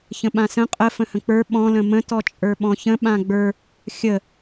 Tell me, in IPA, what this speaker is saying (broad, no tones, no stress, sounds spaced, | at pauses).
ç ə̃ ɓ ã s ə̃ qʼ ə f ə̃ h ə̃ k͡p ə˞ ɓ ɔ̃ l ə̃ m ə̃ t ɔ t͡ʃʼ ə˞ ɓ ɔ̃ ç ə̃ ɓ ã ɡ͡b ə˞ | xʲ ə